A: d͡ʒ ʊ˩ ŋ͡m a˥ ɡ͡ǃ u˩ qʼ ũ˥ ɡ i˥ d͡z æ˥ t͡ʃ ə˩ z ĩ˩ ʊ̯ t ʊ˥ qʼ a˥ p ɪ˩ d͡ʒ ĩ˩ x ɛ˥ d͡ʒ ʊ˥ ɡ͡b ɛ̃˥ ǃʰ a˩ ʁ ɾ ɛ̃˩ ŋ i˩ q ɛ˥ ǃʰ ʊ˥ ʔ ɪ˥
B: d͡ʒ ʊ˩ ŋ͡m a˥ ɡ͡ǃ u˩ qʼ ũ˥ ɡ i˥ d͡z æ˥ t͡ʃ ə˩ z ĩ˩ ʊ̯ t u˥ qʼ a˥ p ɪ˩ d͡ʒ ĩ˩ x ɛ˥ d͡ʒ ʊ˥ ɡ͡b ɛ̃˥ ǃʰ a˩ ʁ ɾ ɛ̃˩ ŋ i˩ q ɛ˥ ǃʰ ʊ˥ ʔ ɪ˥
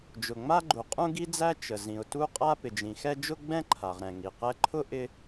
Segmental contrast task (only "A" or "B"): B